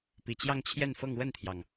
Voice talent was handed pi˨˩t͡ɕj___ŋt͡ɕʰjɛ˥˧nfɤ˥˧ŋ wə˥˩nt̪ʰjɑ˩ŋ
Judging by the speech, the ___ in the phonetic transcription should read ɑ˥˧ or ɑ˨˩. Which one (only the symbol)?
ɑ˥˧